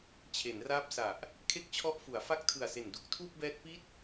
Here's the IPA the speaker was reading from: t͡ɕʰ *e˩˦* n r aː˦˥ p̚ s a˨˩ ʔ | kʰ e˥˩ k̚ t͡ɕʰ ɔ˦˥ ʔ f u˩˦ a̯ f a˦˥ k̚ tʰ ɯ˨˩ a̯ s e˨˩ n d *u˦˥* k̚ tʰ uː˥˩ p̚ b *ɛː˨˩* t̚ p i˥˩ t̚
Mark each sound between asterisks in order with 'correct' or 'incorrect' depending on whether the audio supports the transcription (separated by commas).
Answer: correct, correct, incorrect